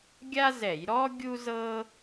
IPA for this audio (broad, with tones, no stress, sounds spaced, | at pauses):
ɡʲ a˥ z ɛ˧˩˧ j ɾ ɔ˥ ɡʲ u˥ z ɤ˥